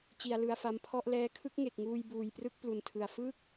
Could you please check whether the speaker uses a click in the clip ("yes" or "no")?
no